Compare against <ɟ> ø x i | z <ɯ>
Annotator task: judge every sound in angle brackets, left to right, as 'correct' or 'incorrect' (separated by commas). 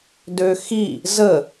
incorrect, incorrect